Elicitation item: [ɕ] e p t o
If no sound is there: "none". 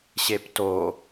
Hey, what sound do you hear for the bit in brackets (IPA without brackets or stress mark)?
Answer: ɕ